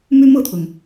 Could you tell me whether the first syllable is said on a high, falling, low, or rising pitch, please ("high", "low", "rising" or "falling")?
high